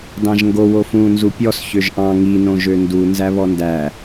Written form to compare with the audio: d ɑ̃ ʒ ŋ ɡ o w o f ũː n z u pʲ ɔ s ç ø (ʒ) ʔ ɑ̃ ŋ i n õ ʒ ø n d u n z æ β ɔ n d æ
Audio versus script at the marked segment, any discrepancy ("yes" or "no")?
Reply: no